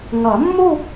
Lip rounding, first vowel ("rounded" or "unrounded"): unrounded